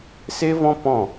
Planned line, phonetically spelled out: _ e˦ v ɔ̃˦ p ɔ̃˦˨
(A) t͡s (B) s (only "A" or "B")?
B